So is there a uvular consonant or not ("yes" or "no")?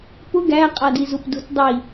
yes